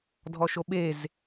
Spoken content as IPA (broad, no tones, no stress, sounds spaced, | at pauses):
dʱ ɔ ʃ o ɓ e z